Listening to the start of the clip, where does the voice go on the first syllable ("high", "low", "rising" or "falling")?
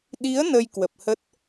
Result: rising